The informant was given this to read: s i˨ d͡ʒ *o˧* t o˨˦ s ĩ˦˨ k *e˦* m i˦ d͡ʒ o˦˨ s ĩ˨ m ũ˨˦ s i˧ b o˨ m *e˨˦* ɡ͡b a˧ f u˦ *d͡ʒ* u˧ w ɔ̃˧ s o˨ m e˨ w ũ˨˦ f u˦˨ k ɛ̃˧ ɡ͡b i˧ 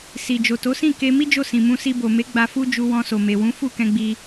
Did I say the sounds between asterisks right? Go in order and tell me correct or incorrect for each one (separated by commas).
incorrect, incorrect, correct, correct